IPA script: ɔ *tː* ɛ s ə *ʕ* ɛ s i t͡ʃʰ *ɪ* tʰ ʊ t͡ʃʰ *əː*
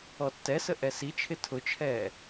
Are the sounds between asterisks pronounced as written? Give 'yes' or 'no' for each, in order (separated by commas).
yes, no, yes, no